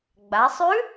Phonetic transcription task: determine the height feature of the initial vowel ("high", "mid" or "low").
low